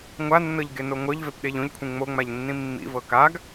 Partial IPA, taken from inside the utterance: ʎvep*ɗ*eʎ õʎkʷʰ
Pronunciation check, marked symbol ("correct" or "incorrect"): correct